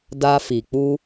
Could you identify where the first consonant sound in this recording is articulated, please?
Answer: alveolar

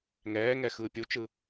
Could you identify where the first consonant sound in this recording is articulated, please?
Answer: velar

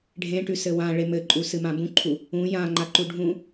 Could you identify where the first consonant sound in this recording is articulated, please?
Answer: retroflex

